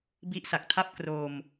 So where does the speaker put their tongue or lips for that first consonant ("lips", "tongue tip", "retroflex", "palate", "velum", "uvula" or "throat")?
lips